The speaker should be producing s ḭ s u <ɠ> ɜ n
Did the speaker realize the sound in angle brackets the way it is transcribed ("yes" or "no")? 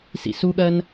yes